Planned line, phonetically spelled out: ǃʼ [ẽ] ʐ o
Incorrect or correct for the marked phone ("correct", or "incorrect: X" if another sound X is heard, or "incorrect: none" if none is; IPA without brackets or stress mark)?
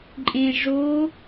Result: correct